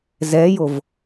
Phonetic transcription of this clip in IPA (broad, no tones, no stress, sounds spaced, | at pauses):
z ɛ j o v